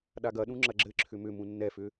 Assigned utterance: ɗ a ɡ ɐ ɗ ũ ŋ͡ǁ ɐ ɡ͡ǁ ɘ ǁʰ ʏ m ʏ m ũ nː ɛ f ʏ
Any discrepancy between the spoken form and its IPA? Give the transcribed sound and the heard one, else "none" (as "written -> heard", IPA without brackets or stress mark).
none